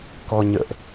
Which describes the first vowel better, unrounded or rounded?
rounded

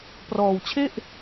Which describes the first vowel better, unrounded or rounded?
rounded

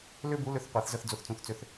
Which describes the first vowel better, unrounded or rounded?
rounded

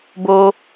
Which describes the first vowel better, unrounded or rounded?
rounded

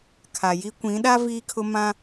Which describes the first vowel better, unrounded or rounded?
unrounded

